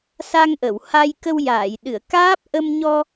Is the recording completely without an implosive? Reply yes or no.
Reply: no